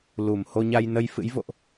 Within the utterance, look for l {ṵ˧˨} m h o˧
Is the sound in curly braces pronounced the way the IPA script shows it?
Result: no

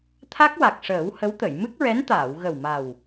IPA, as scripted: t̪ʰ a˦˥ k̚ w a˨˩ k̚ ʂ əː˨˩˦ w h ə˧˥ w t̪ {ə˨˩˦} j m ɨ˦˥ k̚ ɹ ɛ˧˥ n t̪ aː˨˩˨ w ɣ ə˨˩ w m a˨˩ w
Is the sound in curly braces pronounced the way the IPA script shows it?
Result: no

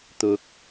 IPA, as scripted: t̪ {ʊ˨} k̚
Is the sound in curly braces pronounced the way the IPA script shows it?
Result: yes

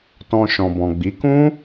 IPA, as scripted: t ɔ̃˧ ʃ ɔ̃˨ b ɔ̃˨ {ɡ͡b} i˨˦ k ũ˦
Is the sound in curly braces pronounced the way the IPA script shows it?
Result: yes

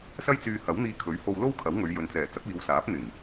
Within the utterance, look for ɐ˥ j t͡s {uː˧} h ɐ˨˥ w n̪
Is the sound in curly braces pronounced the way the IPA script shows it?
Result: no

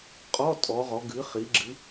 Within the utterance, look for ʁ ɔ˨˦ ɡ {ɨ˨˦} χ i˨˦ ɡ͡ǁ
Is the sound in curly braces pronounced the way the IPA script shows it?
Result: yes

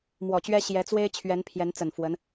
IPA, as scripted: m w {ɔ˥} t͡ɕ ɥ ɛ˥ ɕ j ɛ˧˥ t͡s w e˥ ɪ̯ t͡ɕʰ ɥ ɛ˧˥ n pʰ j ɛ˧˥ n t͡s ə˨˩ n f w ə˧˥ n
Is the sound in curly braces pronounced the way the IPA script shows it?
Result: no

